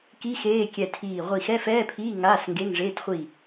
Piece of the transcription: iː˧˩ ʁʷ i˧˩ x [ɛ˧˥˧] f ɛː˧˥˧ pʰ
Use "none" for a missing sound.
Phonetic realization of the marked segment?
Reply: ɛ˧˥˧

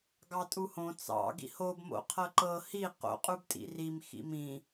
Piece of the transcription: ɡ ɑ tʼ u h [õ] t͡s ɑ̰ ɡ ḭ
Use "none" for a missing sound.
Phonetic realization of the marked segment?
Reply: õ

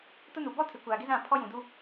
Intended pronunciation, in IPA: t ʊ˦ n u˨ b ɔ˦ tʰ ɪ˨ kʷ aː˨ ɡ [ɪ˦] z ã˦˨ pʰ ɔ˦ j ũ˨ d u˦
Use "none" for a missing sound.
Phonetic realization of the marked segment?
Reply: ɪ˦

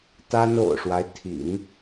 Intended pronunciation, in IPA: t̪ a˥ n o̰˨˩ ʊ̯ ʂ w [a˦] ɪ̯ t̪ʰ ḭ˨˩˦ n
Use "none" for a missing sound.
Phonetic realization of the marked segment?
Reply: a˦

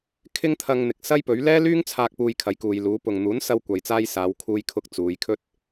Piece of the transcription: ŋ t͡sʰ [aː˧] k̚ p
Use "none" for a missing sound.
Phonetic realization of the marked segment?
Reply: aː˧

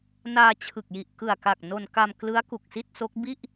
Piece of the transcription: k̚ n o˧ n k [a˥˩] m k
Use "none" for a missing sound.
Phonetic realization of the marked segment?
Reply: a˧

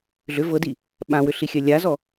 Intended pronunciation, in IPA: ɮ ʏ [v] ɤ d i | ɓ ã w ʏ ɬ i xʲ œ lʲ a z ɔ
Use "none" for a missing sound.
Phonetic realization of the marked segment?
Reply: v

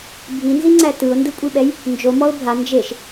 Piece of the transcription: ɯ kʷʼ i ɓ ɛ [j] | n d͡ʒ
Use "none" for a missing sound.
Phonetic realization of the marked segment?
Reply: j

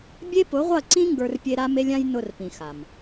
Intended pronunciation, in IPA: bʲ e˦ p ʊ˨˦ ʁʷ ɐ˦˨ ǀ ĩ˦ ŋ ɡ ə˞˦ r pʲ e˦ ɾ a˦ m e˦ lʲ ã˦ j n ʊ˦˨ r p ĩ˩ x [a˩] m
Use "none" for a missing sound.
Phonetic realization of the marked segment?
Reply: a˩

